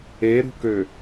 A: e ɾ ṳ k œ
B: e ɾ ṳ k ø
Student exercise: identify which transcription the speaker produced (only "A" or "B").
B